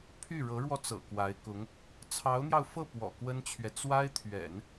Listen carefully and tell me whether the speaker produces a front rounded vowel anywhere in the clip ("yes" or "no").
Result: yes